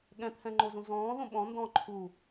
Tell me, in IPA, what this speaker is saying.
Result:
ɠ ɛ̃ t̪ʰ ɛ̃ ŋ͡ǃ o z ũ z ɔ̃ː ð õ ɓ ɔ̃ n d ɔ̃ ǃʰ u

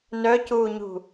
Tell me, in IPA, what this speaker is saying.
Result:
n œ c uː ɲ ṳ

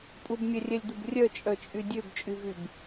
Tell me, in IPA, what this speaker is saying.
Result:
pʼ u b mʲ ɛ rʲ ɛ lʲ d̪ u b rʲ œ t͡ʃʼ œ t͡ʃʼ y dʲ ø b t͡ʃʼ y v y b

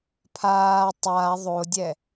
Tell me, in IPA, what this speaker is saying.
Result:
pʰ aː tˤ a ðˤ o dʲ ɛ

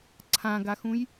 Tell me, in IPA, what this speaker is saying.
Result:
ǀʰ ã ɡ a x ũ j

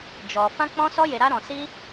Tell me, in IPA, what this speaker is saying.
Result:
d͡ʒ ɔ˧ f ã˦ k͡p ɔ̃˦ s ɔ˦ j e˧ ɾ a˦ ɾ ɔ̃˧ s i˦

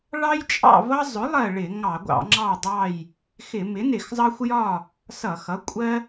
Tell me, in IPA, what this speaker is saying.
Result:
ɭ ɑ˦ j t͡ʃʼ ɑ̰˦˨ v ʌ˦ zˤ ʊ˩˥ lˠ ɜ˦˨ ɭ ɪ˧˩˧ ŋ ɑ˧˩˧ ɡʷ ɑ̰˧˩˧ ŋ͡ǁ ɑ˦˨ dˤ ɑ˦˨ j | x ɪ˧˩˧ m ɪ˩˥ n ɪ˧˩˧ x zˤ ɑ˦ xʷ j ɒ˦˨ | s ʌ˧˩˧ x ʌ˩˥ kʷʼ ɜ˦

